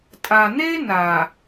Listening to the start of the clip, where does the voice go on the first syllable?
low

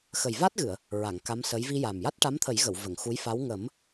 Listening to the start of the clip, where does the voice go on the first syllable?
low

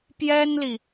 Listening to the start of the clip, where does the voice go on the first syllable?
high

